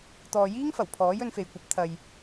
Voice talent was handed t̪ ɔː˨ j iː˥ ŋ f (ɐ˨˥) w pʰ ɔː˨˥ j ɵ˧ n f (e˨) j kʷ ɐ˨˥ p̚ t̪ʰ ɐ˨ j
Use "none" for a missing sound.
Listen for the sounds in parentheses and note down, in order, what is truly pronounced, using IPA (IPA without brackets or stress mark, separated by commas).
ɐ˨˩, e˨